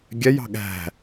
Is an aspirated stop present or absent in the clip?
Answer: absent